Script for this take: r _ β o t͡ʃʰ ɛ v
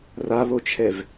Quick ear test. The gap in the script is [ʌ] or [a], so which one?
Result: a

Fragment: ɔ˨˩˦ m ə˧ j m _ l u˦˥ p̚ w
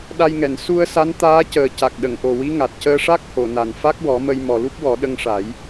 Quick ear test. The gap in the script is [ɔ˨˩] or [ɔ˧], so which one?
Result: ɔ˨˩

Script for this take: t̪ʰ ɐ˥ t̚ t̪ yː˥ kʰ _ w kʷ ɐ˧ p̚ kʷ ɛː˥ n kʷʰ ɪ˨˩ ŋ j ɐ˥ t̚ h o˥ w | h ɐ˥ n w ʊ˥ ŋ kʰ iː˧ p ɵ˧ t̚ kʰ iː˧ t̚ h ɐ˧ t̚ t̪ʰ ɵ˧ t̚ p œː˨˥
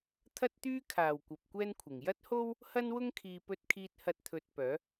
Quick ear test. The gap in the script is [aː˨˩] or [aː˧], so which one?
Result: aː˨˩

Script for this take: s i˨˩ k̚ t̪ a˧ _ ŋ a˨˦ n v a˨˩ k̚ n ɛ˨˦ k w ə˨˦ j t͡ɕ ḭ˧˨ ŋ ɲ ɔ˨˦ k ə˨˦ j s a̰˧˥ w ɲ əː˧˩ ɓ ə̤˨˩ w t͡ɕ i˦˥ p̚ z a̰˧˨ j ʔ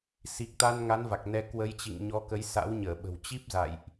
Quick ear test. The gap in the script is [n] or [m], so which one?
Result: n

